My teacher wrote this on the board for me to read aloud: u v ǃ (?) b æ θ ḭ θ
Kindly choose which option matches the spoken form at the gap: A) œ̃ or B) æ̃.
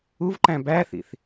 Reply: B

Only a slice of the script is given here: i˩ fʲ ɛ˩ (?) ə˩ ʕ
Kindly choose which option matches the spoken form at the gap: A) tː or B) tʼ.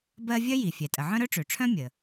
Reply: B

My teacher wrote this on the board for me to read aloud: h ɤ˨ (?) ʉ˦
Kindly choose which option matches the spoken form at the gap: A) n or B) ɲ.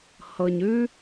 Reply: B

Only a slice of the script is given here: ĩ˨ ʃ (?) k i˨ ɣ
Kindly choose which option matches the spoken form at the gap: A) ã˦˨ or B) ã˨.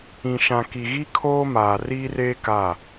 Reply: B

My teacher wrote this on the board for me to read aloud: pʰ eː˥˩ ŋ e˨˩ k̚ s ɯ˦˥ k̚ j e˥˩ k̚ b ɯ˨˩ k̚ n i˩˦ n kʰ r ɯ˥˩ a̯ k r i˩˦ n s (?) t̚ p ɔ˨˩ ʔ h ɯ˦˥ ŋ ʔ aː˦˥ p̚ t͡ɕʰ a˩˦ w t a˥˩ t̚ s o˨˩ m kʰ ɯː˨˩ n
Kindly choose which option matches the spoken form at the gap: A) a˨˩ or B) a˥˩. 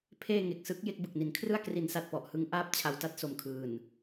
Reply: A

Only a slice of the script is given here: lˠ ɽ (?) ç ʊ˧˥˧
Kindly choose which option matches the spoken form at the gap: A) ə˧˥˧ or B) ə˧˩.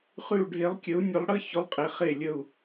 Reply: A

